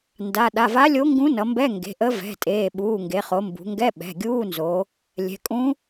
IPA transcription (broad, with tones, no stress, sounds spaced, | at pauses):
n d a˩˧˩ ɗ a˩˧˩ v a˧˥ lʲ o˧˥ ŋ ɡ ũ˧˥ n ʌ˩˧ m b ɛ˧˥˧ ŋ ɡ e̤˩˧˩ ʔ ə˧˥ v ɛ̤˩˧˩ tʼ eː˩˧˩ ɓ uː˩˧˩ ŋ ɡ e˩˧ χ o˩˧ m b ṳ˩˧ ŋ ɡ ɛ˧˥˧ ɓ ɛ̤˩˧˩ ɡʲ uː˧˥˧ n z o˩˧ | lʲ ɛ̤˩˧ kʼ ũ˧˥